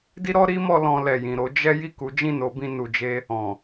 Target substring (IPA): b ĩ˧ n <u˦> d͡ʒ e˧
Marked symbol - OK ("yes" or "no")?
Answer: no